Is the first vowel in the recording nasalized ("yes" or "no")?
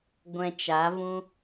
yes